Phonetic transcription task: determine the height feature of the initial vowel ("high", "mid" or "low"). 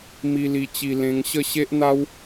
high